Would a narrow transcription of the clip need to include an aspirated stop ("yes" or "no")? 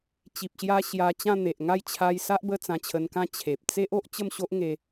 yes